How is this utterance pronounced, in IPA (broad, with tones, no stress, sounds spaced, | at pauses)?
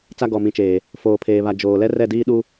t͡s a˦ ɡ ɔ˨ m ĩ˨ t͡ʃ eː˨ | f oː˨ pʰ eː˨ β a˨ d͡ʒ oː˨ l ɛ˦ r ɛ˦˨ d iː˦ ɗ u˦